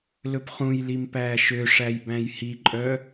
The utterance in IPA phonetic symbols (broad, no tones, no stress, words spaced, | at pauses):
lɵpχũjlim pæːʃøʂæj bæ̃jhiǃʼœ